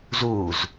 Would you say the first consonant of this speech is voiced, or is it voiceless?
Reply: voiced